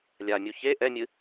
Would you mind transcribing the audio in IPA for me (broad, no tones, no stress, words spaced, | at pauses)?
lʲamʲu çe ʔɛmʲɨ